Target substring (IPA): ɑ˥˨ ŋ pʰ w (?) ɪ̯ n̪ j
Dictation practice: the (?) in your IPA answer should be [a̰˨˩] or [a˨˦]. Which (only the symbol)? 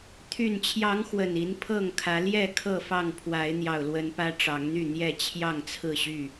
a˨˦